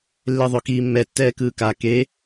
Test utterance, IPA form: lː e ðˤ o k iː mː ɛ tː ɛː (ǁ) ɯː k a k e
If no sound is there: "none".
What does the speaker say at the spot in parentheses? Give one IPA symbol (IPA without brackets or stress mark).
k